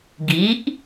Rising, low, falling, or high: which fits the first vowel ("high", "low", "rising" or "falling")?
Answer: rising